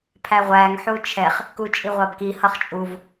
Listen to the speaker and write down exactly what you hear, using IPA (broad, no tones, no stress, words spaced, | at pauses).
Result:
pʰæʁʷæŋ ħut͡ʃʰɛχ | kut͡ʃʼiʁʷɑbki hʌχt͡ʃʼuv